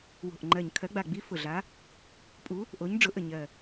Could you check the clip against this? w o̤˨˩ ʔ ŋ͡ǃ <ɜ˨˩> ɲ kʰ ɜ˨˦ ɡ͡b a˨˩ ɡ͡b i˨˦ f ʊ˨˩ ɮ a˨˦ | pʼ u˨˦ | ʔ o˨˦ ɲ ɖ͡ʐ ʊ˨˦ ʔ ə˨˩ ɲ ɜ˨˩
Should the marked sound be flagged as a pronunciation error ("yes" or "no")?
no